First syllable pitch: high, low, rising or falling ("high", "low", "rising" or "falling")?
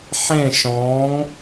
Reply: falling